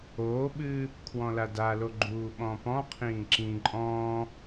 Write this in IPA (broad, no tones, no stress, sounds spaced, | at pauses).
oː ɓ ɨː | kʰ w ɔ̃ l a d a l o ɡ͡ǃ uː ɓ ɔ̃ p ɔ̃ qʰ ĩː ǁ ĩ ǃʼ ɔ̃ː